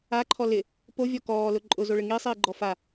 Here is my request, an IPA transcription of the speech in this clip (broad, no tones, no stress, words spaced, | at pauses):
aǃʰɔ lɪ | povʲɔ kɔːlʊ ǃʼʊzoɭɪ ŋisˤiːɡ͡ǃɔ fa